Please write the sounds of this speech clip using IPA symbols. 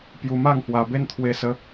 pju˧ma˥˧ŋhwa˧be˦n t̪ʰwe˧sə˧

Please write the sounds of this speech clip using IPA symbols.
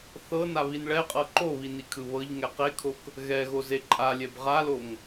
θɤnaβin ɭɛqʼɤ ǃoβinikʰɯ βɤʎŋɛ qekʰok | ɣɛɣoze ǃʼalʲɛb ʁaloŋ

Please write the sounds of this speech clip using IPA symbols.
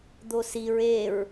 d̪osiɹ eɹ

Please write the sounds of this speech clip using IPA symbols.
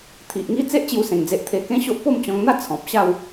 t̪ʰi˨ʔŋi˦ t͡se˦ʔt͡ɕju˧sẽ˨˩ŋd͡ze˨ʔ t̪ʰe˧kẽ˦ɕo˦ʔ po˥˧mt͡ɕɔ̃˧ŋn̪a˥˧ t͡sʰɔ̃˨p̚ɕa˥˧w

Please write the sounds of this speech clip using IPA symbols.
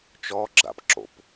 t͡ʃɔɡ͡ǁa̰p ǁo̰p

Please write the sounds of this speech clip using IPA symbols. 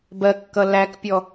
bɜkːʌ lækpʲɔ

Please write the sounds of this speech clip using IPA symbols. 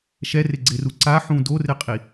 ʃɛrɪɡ͡ǀɪru ǀaħũ dorɪqʼi

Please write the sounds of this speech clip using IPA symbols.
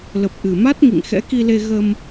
lə˨˩p̚ ʔɨ˨˩ma˦˥t̚ ŋḭ˧˨ŋxɛ̰˧˥ki˧le˧ ɣə˧m

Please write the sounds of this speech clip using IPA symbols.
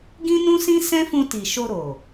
ɡĩ˦nũ˦sĩ˦ sɛ̃˦fũ˧ti˨ ʃo˧ɾo˨

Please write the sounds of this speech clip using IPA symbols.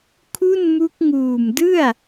kʰu˥˩nmu˦˥k̚ ŋuː˨˩mdɯ˥˩a̯

